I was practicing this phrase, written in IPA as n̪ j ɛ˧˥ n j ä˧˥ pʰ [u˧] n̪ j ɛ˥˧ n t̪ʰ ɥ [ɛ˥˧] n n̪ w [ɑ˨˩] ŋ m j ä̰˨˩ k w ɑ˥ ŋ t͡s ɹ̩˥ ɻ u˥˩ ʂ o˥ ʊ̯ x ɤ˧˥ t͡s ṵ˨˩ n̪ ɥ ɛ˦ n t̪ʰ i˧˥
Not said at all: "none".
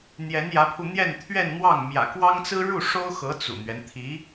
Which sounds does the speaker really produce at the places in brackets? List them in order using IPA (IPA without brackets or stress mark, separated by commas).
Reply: u˧, ɛ˥˧, ɑ˥˩